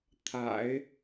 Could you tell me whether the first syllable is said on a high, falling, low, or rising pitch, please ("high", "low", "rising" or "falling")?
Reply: low